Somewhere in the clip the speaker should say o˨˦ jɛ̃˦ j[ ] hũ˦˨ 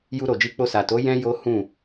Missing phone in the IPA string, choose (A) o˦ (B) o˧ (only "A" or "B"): A